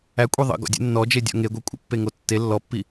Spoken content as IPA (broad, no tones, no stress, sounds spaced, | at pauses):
æ kʷʼ e ðˤ ə̰ ɡ ɔ̰ dʲ ə̰ nː ɔ d͡ʒ e dʲ ɔ̰ ŋ e ɡʷ e kʷʼ ə̰ pː e ŋ o tː e lː ɔ pː i